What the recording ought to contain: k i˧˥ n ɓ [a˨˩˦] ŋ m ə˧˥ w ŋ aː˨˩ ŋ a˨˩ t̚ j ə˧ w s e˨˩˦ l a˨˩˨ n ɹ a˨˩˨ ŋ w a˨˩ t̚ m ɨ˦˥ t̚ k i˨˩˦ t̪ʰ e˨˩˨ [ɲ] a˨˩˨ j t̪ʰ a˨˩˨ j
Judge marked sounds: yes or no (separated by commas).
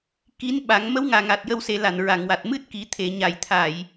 yes, yes